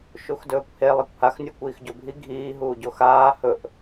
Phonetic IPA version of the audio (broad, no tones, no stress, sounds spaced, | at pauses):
ʃ u x d ɵː kʷ h e lˠ i kʷ h a x nʲ o kʷ iː x ɟ o bʱ i ɡʱ iː ɦ uː ɟ o x aː h ɵ ʔ